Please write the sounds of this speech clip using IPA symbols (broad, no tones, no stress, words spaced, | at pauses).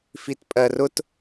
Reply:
fitpʼɜrʊt